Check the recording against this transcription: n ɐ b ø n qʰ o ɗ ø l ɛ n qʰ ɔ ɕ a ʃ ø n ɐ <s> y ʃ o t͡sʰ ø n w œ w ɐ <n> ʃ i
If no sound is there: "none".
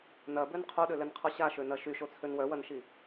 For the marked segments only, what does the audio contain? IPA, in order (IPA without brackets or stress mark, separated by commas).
ʃ, n